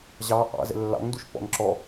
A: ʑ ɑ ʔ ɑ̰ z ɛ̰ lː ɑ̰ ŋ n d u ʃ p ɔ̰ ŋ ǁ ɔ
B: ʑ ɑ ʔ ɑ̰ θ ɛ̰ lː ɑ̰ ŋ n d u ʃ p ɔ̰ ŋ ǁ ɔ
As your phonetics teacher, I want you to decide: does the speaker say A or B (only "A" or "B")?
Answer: A